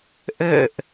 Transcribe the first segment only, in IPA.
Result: ʔ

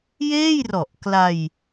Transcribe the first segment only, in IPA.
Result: j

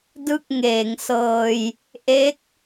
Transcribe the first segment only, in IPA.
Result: d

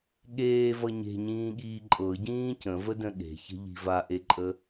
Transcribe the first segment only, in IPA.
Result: ɠ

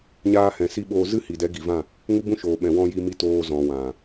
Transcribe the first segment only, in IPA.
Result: ɲ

